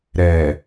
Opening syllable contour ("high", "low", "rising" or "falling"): low